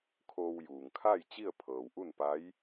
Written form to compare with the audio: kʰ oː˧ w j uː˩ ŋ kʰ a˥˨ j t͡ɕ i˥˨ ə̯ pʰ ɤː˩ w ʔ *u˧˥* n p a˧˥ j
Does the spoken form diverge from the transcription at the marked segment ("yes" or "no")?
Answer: yes